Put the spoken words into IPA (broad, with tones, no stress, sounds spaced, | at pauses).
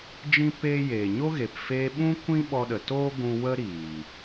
d͡ʒ ĩ˧ p eː˧ j eː˨ ɲ o˦ ɣ e˨ p f eː˧ ɓ ũ˦ kʷ ĩ˦ ɓ ɔ˧ ɗ ə˨ t oː˦ ɡʷ ũ˧ w ə˦ ɾ iː˨